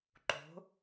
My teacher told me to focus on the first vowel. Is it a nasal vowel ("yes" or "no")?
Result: no